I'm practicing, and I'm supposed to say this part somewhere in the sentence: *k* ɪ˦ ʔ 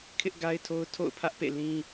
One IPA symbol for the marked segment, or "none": kʰ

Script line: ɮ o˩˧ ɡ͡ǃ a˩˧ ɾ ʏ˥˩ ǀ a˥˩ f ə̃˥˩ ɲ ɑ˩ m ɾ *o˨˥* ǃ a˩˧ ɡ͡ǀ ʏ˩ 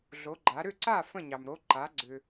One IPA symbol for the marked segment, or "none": o˨˥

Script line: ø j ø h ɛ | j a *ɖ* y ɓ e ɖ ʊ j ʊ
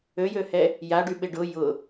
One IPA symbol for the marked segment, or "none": ɖ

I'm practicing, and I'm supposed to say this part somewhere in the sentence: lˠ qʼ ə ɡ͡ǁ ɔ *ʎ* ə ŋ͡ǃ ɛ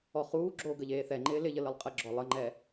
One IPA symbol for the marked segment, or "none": lˠ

